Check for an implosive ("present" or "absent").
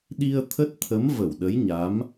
present